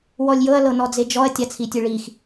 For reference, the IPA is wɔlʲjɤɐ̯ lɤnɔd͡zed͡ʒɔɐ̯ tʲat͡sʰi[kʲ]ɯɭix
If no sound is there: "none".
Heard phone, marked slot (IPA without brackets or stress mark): tʲ